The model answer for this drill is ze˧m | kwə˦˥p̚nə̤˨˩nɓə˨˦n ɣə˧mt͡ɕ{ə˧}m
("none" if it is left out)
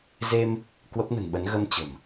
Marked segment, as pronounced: ə̤˨˩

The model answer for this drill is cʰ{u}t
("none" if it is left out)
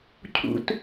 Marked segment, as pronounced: ṵ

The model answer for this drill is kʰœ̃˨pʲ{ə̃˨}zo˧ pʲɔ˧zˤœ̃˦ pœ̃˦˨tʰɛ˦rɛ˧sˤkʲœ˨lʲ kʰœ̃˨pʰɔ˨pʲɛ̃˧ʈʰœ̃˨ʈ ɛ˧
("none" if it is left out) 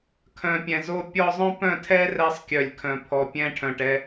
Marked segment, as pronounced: ɛ̃˨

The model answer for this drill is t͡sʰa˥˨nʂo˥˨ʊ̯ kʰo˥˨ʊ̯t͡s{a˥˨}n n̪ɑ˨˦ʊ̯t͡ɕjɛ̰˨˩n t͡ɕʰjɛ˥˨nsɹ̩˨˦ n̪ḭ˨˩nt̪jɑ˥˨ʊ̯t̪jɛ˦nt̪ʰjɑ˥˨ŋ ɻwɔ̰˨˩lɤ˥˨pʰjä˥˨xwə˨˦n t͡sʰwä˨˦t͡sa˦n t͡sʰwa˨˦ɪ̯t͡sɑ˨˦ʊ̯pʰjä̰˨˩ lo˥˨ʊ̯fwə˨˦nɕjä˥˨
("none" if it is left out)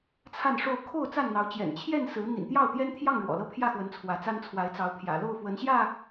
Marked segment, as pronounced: a˥˨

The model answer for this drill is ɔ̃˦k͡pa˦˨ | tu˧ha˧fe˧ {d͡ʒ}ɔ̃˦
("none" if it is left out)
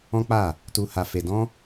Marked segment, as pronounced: d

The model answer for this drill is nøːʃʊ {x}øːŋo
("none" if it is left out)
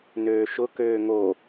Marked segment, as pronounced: k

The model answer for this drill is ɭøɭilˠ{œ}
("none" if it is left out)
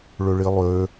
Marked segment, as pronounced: ø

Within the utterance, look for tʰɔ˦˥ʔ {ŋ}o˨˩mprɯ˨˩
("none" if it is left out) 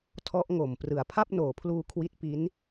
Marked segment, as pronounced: ŋ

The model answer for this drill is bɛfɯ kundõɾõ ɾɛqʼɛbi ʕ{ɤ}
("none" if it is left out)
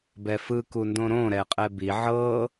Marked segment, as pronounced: ɤ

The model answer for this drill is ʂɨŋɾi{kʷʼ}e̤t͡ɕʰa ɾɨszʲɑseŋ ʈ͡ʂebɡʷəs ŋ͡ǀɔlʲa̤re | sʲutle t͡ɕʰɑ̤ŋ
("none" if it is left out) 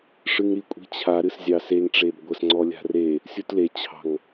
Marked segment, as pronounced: kʷʼ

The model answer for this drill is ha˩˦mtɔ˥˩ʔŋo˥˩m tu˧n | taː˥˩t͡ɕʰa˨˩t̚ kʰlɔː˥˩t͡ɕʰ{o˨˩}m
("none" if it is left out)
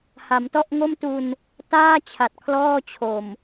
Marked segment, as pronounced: o˨˩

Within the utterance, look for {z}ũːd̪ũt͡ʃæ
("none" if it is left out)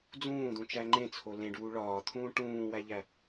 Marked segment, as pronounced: d͡z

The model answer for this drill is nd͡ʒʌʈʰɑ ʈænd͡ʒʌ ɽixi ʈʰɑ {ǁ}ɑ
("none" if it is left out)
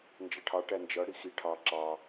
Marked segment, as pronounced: ǁ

